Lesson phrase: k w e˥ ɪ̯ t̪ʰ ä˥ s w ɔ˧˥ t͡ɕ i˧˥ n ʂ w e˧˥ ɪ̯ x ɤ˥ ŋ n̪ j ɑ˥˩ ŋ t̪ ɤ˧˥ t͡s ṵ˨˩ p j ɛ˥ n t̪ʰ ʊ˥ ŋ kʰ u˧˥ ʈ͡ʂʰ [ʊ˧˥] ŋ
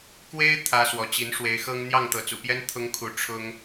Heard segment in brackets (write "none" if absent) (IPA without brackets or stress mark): ʊ˥